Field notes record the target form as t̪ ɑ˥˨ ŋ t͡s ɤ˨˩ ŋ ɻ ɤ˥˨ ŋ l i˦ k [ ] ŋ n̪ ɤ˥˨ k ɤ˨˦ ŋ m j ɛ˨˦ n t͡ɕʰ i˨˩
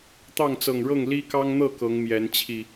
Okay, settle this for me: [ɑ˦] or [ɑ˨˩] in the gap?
ɑ˦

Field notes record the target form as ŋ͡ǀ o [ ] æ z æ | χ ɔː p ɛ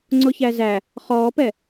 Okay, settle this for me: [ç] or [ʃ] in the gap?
ç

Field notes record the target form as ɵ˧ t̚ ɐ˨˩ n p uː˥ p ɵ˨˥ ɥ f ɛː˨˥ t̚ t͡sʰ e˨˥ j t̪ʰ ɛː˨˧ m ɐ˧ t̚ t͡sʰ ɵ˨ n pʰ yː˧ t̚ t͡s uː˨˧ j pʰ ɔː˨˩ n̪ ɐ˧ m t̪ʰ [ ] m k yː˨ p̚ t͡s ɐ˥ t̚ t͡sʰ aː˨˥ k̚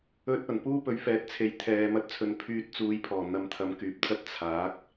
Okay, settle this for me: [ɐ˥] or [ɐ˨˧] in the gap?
ɐ˨˧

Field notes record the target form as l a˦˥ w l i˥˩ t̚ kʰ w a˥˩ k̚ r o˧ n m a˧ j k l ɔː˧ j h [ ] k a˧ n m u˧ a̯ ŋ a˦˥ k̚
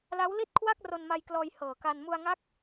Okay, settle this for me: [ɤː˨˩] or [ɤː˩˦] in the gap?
ɤː˨˩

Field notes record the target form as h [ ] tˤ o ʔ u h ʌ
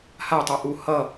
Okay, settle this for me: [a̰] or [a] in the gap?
a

